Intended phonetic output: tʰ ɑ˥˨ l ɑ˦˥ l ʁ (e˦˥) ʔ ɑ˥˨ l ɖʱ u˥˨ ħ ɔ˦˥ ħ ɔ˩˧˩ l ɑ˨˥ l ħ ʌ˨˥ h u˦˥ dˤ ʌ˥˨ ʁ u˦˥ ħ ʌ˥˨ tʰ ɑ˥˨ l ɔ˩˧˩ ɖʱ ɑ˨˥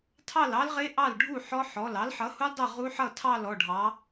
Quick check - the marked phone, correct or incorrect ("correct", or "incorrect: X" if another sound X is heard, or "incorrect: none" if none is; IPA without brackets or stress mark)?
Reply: correct